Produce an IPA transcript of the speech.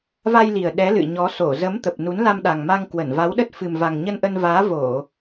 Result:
v a˧ j l i˨˩ ə̯ ɗ ɛ˨˦ l ɨ̰˧˨ ɲ ɔ˨˦ s o˧˩ z ə˨˦ m t̪ ə˨˩ p̚ n u˨˦ n l a˧ m ɗ a˨˩ ŋ m a˧ ŋ k w ə˧˩ n v a˨˦ w ɗ ə˦˥ t̚ f ɨ˨˩ m v a˨˩ ŋ ɲ ə˧ n ʔ ə˧ n v aː˨˦ v o˧˩˨

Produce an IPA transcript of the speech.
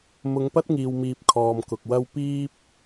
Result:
m ʊ˨˧ ŋ p ɐ˥ t̚ ŋ iː˨ w m iː˨ p̚ kʰ ɔː˨ m k ʊ˨ k̚ w ɐ˥ w p iː˥ p̚

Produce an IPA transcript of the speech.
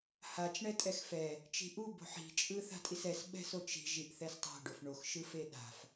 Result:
h a t͡ʃ ɳ ɛ tʼ ɛ x f ɛ | t͡ʃ i̤ ʔ u b o̤ ħ i̤ t͡ʃʼ ɯ θ a̤ tʼ i s ɛ s ɓ ɛ̤ s o t͡ʃ i̤ ʒ i ʔ θ ɛ s tˤ a̤ ɖ o f ɳ o x ʃ ɯ f e ɗ a̤ f

